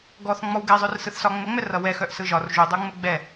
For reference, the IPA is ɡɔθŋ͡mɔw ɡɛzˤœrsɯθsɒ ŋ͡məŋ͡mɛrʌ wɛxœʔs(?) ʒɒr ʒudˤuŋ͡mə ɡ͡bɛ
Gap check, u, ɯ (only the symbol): ɯ